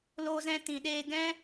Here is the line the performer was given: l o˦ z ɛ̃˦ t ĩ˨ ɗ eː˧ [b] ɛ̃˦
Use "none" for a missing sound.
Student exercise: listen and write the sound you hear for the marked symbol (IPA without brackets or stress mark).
ɡ